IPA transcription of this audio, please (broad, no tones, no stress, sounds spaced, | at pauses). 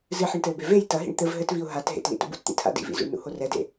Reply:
z ɨ ħ ɘ ɳ t ɘ ʊ̯ b e v e j t ɐ ɦ ḭ ɳ t̪ ɘ v ɦ ɘ t v i ʊ̯ ɦ a t ɦ ḛ t l ḭ t ṵ b ṵ t t̪ ḭ tʰ a̰ d ḭ v ḭ z ṵ ɳ n ṵ h o r ɛ d ḛ